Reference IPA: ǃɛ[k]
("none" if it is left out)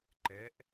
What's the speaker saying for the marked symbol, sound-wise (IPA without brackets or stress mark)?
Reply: ʔ